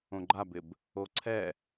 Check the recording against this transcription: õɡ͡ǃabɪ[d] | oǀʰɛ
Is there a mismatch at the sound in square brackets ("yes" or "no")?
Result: yes